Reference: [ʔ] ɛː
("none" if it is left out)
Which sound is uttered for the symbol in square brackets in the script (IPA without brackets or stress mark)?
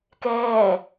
k